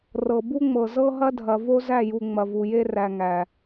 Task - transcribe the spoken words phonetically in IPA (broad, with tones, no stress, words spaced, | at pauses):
rɤ˨bu˦ŋ͡mɤ˨ zɤ˦ɦɐ˦dʱɐ˨ vo˦zæ˦˨ju˨ ŋ͡mɐ˨vu˨je˦ ræ˨ ŋæ˨